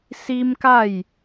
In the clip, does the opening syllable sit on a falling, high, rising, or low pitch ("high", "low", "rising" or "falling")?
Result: high